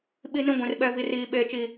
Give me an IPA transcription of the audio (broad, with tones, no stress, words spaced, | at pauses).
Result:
ɓi˦nĩ˦ ɡʷĩ˨r ɓɛ˦vi˦riː˦ ɓeː˦t͡ʃi˦